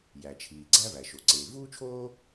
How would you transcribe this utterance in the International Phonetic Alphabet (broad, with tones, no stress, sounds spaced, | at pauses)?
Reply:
j æ˩ t͡ʃʰ iː˩ ɡ͡ǀ æ˥ v æ˩ ʃ o˩ ǀ eː˩ v uː˥ t͡ʃʰ oː˥